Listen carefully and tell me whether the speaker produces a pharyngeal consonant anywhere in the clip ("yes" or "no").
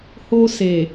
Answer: no